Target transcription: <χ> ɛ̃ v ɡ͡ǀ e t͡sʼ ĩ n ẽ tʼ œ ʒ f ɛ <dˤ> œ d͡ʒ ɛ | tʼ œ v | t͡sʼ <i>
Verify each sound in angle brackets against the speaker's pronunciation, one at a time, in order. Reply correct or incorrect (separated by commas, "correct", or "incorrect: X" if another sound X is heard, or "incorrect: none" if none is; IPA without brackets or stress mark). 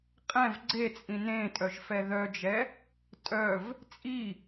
incorrect: qʼ, incorrect: ð, correct